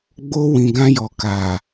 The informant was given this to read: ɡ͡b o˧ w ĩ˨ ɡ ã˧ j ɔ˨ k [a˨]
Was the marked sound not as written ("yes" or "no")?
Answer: no